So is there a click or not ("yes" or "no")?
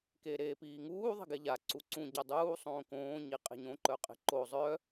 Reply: yes